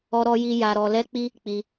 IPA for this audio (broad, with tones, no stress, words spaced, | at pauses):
ɔ˦ ɾɔ˦ji˦ ja˧ɾɔ˧ lɛ˦k͡pi˦ | k͡pi˧